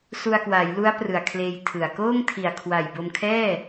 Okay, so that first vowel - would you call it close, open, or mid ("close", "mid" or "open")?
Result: close